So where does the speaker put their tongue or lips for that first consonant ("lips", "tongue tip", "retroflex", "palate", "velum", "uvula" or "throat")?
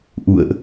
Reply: throat